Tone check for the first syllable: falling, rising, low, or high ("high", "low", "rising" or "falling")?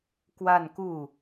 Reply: falling